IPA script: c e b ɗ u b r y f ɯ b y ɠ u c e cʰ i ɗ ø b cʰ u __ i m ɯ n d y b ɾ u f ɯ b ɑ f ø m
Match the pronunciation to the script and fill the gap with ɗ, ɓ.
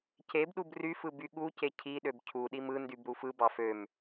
ɗ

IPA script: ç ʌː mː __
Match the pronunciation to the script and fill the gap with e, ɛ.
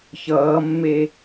e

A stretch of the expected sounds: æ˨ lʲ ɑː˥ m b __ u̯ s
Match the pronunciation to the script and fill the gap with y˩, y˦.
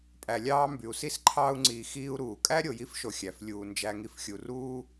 y˩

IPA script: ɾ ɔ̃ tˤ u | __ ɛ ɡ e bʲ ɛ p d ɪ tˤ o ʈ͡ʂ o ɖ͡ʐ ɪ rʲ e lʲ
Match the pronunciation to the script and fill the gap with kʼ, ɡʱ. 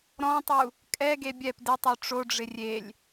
kʼ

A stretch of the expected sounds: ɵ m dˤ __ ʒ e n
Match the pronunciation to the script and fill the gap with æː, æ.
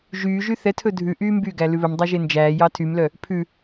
æ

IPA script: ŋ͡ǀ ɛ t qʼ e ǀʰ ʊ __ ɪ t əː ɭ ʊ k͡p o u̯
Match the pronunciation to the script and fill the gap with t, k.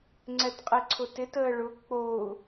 t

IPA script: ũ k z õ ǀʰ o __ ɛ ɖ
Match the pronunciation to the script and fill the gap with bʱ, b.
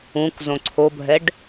bʱ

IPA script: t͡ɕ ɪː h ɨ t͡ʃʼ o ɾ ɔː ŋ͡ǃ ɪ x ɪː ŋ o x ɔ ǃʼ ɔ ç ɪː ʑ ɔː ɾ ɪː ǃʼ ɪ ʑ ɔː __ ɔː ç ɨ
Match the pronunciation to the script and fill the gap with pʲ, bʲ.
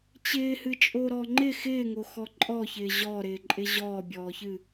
bʲ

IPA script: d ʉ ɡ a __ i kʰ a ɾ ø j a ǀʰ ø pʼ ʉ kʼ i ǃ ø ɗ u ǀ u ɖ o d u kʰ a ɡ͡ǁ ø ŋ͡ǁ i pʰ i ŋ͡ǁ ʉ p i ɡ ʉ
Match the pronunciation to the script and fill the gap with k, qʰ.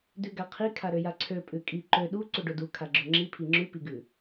qʰ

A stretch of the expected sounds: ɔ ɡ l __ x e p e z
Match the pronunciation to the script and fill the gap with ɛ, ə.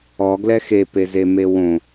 ɛ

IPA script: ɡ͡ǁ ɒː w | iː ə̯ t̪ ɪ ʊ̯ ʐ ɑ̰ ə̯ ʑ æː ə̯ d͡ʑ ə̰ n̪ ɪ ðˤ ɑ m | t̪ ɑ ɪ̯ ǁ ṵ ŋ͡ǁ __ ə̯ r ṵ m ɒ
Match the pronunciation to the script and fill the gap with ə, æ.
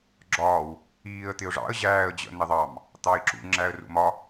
æ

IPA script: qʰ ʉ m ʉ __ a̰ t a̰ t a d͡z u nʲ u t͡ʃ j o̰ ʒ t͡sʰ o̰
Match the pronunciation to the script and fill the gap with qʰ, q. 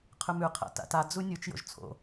qʰ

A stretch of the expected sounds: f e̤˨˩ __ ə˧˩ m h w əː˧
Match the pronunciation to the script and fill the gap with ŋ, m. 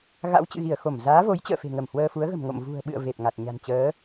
ŋ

